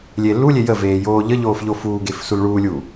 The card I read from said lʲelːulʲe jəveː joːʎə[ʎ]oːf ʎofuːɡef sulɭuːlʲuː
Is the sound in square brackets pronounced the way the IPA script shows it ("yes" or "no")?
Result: yes